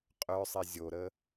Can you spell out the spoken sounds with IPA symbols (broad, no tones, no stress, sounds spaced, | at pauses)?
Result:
qʼ œ sˤ i zʲ o ɾ ə